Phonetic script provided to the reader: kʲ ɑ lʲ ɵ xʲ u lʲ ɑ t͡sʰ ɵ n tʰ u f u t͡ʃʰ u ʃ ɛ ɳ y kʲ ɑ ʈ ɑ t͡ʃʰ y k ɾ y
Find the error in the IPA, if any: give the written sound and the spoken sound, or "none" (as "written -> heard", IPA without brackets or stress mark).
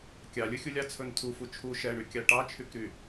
none